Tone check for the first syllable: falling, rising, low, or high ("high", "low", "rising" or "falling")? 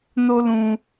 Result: high